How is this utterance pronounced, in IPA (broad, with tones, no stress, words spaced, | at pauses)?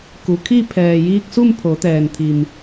ku˩˧kʰi˥˨ pʰɛː˩jiː˧k̚ su˥˨mpʰo˩˧t̪ɛː˩nt̪ʰi˩m